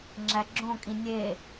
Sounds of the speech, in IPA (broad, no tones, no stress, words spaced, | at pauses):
ŋ͡ǁæɡ͡ǁõkʼĩ nʲe